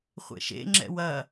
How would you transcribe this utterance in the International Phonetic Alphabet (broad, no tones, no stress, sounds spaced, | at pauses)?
χʷ ḛ ʃ ḛ ŋ͡ǁ ɛ̰ w ɐ